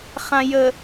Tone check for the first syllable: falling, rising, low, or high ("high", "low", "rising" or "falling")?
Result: low